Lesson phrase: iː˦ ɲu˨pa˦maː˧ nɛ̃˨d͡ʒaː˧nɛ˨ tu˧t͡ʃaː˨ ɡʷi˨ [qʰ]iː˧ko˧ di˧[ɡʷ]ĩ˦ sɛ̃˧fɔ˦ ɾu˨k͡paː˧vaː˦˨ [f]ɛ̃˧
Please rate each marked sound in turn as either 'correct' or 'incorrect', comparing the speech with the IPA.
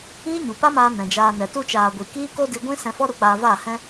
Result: incorrect: k, correct, incorrect: h

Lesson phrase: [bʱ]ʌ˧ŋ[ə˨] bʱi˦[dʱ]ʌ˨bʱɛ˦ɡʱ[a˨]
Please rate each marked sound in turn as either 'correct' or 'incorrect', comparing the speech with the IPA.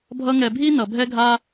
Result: correct, incorrect: ɛ˨, incorrect: n, incorrect: a˦

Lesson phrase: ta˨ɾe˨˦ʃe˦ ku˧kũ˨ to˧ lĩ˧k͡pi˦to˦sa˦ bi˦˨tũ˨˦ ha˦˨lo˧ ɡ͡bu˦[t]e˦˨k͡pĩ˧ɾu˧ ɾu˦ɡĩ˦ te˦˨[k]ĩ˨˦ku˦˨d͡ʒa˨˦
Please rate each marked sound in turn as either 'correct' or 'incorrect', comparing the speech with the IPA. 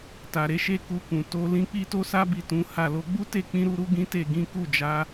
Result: correct, incorrect: ɡ

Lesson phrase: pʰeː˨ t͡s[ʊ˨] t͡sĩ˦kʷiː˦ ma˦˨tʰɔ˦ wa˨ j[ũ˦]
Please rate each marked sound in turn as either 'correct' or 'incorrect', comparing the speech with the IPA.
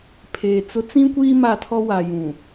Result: incorrect: ʊ˦, incorrect: ũ˨

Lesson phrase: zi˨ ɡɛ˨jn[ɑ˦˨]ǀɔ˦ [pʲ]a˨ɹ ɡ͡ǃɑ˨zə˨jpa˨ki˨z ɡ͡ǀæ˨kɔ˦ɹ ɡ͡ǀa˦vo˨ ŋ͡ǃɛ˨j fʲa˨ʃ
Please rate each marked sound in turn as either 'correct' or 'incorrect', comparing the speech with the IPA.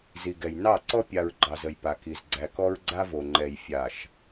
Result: correct, correct

